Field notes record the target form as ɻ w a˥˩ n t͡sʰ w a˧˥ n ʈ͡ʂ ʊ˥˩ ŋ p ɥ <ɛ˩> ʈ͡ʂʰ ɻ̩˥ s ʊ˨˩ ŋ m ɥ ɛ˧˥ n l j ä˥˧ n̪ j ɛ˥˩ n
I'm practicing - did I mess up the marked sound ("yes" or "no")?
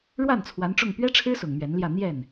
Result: yes